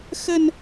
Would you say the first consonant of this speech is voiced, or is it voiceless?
voiceless